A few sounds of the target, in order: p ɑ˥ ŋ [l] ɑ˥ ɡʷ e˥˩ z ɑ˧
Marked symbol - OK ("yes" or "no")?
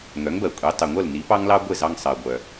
yes